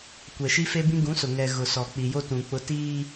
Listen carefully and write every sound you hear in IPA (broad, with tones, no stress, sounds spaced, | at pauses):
kʷ ɛ˨ ʃ i˦ f e˦ b ĩ˦ ɡ ũ˨˦ s ʊ˨ ŋ ɛ˨ ɣ ʊ˨ s ɔ˨ k͡p i˨ j o˦ t ũ˨ k͡p ʊ˦ t iː˦